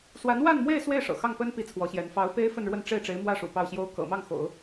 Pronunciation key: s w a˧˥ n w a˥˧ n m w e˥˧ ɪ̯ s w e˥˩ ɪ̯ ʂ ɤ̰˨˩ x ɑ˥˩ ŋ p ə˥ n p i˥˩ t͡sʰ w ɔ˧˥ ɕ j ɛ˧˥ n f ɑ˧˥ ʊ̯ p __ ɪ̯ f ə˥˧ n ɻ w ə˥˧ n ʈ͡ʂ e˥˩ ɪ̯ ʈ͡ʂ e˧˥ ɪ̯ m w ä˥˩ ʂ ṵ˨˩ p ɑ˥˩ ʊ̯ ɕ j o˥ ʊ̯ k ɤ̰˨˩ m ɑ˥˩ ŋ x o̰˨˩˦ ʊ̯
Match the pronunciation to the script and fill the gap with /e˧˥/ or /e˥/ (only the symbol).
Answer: e˥